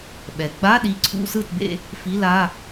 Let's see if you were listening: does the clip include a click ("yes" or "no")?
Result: yes